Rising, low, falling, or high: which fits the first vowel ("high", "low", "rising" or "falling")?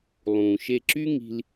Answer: low